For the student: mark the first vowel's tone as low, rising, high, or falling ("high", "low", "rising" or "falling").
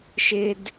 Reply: high